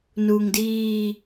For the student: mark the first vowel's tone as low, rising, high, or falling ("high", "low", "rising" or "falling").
low